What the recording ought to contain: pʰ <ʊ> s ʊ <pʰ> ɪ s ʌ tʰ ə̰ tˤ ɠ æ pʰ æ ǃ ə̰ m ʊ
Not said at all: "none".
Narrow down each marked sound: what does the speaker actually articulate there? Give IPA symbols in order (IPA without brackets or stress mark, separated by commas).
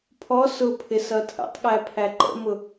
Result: ɔ, pʰ